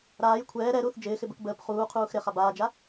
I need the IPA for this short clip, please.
ɾ aː j kʷʰ ɛː ɾ ɛ ɾ uː θ d͡ʒ ɪː x ɪ b ə k b əː p χ uː qʰ uː x ɾ ɪ χ a b aː d͡ʒ a

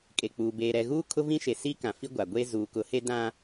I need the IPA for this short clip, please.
kʼ e˨ k͡p uː˨ b eː˨ ɾ ɛ˨ ɣ uː˦ kʰ ʊ˦ v ĩ˦ ʃ e˨ s i˦ k ã˨ f i˦ ɡʷ a˨ ɡʷ e˦ z uː˨ k ʊ˨˦ h e˦ d ã˦

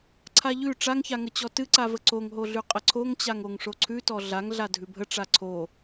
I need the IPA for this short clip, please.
ǀʰ a ʎ ʉ ʈ͡ʂ a ŋ ç a ŋ ə t͡ɕ ɔ t ɨ ǀ a v ə ǀ o ŋ ɦ o ɮ ʉ qʼ ə ǀʰ o ŋ t͡ɕ a ŋ o ŋ ʂ o ǀʰ ʉ t ɔ ɮ a ŋ ɮ a dʱ ʉ bʱ ə ʈ͡ʂ a ǀʰ o

